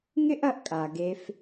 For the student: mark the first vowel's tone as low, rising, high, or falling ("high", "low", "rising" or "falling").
high